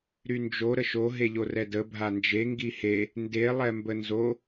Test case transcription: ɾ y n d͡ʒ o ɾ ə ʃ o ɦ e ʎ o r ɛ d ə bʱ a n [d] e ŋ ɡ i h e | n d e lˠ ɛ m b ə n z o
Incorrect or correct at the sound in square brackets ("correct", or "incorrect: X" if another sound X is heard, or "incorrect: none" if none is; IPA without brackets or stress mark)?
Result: incorrect: d͡ʒ